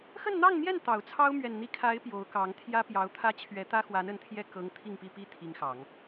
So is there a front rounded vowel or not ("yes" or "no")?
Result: no